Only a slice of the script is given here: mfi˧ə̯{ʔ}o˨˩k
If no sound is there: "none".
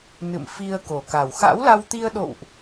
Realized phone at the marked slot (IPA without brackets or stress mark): k